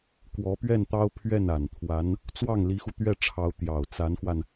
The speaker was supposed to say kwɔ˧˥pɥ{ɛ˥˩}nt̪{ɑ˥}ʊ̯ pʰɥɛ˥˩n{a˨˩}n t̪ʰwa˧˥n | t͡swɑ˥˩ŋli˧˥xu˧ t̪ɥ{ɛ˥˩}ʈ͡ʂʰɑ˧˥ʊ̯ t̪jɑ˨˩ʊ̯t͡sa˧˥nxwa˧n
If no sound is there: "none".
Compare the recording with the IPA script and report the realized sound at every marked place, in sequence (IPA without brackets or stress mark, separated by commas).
ɛ˥˩, ɑ˥, a˨˩, ɛ˥˩